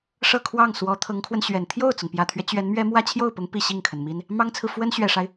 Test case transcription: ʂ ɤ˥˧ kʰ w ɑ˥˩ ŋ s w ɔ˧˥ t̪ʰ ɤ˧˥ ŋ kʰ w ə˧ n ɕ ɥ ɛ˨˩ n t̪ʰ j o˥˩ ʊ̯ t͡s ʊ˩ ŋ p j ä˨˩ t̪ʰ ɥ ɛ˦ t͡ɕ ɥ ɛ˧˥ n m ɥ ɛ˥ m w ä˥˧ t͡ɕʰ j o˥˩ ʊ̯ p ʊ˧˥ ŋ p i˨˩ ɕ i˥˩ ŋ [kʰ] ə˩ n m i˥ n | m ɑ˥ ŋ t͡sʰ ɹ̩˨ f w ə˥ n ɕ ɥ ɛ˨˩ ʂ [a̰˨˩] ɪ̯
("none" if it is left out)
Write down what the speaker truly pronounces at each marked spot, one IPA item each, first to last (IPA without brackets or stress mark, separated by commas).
kʰ, a˦